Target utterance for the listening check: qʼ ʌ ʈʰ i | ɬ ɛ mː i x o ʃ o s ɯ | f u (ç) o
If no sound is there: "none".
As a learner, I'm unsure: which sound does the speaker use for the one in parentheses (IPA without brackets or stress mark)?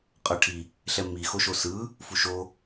ʃ